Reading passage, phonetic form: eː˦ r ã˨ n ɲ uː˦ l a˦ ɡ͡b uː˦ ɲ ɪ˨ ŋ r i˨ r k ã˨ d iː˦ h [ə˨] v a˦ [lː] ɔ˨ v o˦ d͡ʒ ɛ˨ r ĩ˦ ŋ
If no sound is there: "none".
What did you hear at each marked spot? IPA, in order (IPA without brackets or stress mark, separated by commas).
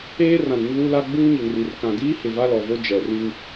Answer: ɪ˨, l